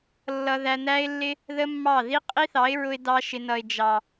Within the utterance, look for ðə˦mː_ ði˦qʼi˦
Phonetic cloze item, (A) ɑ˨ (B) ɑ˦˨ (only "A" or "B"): B